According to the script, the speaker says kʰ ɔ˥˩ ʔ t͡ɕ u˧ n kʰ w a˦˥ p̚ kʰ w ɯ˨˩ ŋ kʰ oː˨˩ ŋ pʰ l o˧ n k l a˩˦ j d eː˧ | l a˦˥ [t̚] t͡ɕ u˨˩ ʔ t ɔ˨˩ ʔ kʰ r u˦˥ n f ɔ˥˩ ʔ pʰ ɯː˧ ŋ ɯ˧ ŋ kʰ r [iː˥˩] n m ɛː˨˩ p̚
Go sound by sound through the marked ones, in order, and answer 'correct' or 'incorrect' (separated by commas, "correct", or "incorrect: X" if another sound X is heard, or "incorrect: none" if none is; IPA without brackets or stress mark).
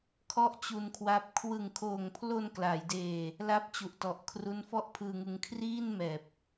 incorrect: p̚, correct